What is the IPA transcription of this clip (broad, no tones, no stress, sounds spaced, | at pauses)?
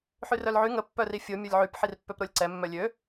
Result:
ħ y r œ l ʕ y ŋ ə pː œ r i fʲ o mʲ o lʲ ʕ y p ħ i r pː ø p ɾ o lʲ ǀ ɛ mː œ lʲ ø